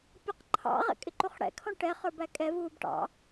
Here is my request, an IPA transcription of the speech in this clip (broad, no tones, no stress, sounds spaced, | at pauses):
pʲ ʌ q ǃʰ ɑ̰ ʁ ɛ̰ kʼ ɪ ǃ u χ ɽ ɛ̰ kʰ ɔ̃ ʈ ɛ χ ə˞ b æ kʼ ɛ v uː b ʈ ɑ̰